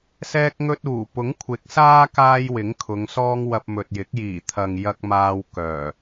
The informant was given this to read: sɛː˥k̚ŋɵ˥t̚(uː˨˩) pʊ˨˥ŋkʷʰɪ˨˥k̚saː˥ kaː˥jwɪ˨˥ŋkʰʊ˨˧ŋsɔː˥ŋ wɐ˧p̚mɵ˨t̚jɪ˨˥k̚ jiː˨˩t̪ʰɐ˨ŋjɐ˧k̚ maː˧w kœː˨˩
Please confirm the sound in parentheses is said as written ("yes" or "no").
yes